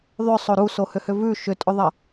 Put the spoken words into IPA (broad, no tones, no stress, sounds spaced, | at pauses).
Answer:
ðˤ ʏ sˤ o ɾ u s o h ʏ h ʏ v ʉ ʃ ʏ tʼ ʏ ðˤ ɐ